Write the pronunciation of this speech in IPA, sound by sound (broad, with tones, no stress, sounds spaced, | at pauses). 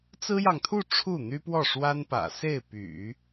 t͡s ɹ̩˥ j ɑ˨ ŋ t̪ʰ u˥˧ ʈ͡ʂʰ u˥˩ n̪ y˥ p w ɔ˥˩ ʂ w a˥ n p ä̰˨˩ s e˥˩ ɪ̯ p y̰˨˩˦